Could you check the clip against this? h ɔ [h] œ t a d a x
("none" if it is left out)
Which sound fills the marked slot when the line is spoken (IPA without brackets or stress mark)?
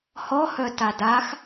h